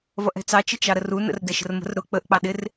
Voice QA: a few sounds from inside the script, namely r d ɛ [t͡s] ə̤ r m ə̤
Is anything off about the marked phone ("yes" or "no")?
yes